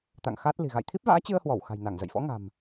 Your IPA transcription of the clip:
t̪ a̰˧˨ ŋ x a˦˥ t̚ l i̤˨˩ ɣ a̰˧˨ j t̪ʰ i˦˥ p̚ v a̰ː˧˥ t͡ɕ ɨ˧ ə̯ h w ɔ˧˩ w x a̤˨˩ j n a˧˩ ŋ z ə̰˧˨ j f ɔ̰˧˥ ŋ a̤˨˩ m

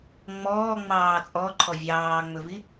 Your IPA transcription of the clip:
ŋ͡m ɔː ŋ͡m ɑː t͡sʼ ɔ ǃʰ ɔ vʲ ɑː ŋ͡m ɵ v i

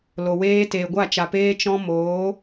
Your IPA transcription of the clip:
l o˨ w eː˧ t eː˨ ɡʷ a˦˨ t͡ʃ a˨ p eː˧ t͡ʃ ɔ̃˧ m oː˨˦

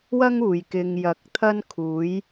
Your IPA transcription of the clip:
w ɐ˥ ŋ uː˨˩ j k ɪ˨ ŋ j ɐ˨˥ k̚ t̪ʰ ɐ˥ n kʰ uː˨˥ j

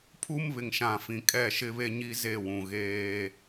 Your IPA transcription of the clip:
pʰ u˦ m β ɪ˨ ŋ ʃ ã˨ f ĩ˨ kʼ ɛ˦˨ ʃ ɪ˦ β e˦ ɲ i˦ z e˦˨ w ũ˨ ɣ eː˦

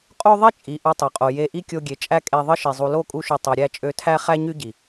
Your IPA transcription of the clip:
qʼ o˦ ðˤ i˦ t͡ʃʼ i˨ ʔ u˧ tˤ ø˨ qʼ o˨ j e˧ ʔ i˦ kʲ o˧ ɡʲ e˨ t͡ʃʼ æ˦ kʼ e˧ ðˤ ɯ˦ ʃ i˨ zˤ u˨ l o˦˨ kʼ u˧ ʃ y˨ tˤ ø˨ ɾʲ æ˦˨ t͡ʃʼ ø˧ tʰ æ˦ χ æ˦ ɲ y˦ ɟ i˨

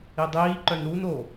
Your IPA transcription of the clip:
i dˤ iː ǃ œ n ɾ u n o

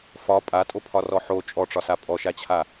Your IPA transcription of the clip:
f ɒ pʼ a tʼ o pʰ ɒ r ɔ ħ o t͡ʃʼ ɔ ʈ͡ʂ ɒ s a pʼ ɔ ʃ a t͡ɕʰ a

